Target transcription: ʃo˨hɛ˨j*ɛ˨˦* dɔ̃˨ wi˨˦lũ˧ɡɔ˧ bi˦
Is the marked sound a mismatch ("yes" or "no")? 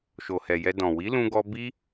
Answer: yes